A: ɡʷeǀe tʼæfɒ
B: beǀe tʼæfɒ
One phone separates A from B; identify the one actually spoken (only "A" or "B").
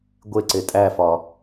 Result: A